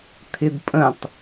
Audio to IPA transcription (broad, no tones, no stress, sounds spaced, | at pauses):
t̪ʰ ɪ d pʼ ə̃ tˤ